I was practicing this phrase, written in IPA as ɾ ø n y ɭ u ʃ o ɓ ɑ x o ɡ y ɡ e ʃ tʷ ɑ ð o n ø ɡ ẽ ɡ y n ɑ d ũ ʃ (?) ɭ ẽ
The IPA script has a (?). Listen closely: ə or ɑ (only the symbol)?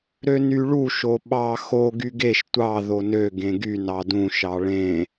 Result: ɑ